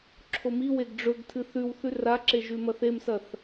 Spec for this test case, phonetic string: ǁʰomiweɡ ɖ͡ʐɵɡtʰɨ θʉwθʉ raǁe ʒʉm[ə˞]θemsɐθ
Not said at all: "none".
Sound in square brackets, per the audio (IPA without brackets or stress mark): ɐ